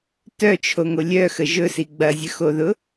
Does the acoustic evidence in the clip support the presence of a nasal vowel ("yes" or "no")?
no